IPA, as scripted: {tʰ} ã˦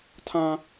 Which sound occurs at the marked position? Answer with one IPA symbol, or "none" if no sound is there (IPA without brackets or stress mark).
tʰ